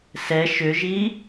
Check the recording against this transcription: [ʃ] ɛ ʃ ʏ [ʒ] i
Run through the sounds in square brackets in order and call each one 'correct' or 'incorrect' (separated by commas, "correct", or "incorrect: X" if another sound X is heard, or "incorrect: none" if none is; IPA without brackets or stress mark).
incorrect: s, correct